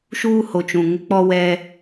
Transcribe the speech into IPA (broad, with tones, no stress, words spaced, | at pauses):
ʃuː˦ho˨t͡ʃũ˨ ŋɪ˦k͡pɔ˦wɛ˦